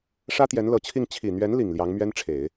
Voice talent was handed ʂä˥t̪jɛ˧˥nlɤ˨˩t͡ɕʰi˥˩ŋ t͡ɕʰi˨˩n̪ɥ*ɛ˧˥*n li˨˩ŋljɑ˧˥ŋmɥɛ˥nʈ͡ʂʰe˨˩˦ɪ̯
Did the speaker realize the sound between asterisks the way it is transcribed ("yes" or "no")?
yes